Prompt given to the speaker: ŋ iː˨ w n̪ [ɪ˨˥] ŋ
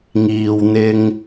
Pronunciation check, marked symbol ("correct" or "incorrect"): incorrect